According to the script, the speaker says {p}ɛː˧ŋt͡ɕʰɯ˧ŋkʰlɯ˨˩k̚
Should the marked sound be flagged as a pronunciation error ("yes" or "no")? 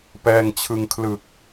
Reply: no